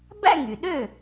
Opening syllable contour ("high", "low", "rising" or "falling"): falling